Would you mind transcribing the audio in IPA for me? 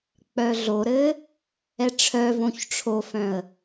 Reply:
k͡p œ ɮ o ɾ ɘ | ɛ ʈ͡ʂʰ œ v õ ç ʈ͡ʂʰ o f œ̃ ə̯

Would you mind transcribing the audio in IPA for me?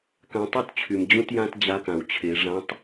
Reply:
k ã˧ tˤ y˥ t t͡ɕʰ y˩ m d͡ʑ ũ˥ t j ã˥ t d͡ʑ a˧˥ k ã˩ w t͡ɕʰ e˩˧ ʐ ã˧˥ tˤ

